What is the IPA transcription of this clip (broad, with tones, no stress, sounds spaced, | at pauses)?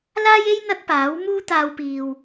l aː˥ j e˥ j n̪ ɐ˥ t̚ p aː˨˥ w m uː˥ t̪ aː˧ w p iː˨ w